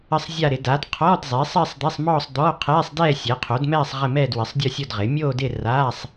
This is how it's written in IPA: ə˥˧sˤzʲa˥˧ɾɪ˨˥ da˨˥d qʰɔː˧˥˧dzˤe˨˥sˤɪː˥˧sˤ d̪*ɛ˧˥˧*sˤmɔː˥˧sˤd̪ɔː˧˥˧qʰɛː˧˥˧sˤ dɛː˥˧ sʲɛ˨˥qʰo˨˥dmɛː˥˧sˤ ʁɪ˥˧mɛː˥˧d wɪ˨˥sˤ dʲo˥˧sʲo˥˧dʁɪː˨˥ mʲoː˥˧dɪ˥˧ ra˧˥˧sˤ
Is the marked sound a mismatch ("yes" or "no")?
yes